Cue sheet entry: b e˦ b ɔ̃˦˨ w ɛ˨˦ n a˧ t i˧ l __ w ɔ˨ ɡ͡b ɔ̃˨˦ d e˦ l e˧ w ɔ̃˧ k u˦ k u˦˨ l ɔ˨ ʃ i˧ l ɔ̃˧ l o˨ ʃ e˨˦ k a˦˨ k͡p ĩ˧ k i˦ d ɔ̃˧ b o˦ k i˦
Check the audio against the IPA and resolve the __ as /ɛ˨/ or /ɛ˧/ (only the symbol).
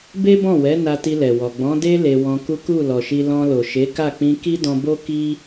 ɛ˨